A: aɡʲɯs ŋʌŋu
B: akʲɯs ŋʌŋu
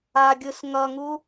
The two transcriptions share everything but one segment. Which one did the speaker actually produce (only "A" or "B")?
A